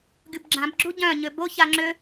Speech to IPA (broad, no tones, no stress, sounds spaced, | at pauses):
ɡʲ u b ɡ͡ǁ ã b ɡ͡ǁ u ɟ œ̃ ɲ ø b o ç a ŋ͡ǁ ø